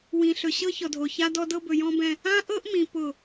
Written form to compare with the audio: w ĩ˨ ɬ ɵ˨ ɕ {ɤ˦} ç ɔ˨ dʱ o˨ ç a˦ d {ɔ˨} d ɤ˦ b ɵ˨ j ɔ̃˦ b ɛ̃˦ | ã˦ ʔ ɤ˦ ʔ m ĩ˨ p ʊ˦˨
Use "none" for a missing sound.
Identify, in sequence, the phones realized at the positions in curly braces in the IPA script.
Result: ɤ˦, ɔ˦

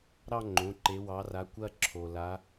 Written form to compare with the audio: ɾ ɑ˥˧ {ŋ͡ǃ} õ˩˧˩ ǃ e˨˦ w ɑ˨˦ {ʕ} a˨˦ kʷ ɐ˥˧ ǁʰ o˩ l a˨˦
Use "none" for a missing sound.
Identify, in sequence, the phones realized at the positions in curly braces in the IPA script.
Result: ŋ͡ǃ, r

